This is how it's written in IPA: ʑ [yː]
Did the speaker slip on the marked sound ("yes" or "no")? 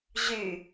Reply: yes